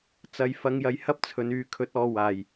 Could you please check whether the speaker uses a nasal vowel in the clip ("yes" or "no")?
no